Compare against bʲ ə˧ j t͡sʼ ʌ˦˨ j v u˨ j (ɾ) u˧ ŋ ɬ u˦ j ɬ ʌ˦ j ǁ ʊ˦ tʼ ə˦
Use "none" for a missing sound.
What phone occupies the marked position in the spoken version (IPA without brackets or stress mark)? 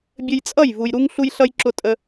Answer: ɾ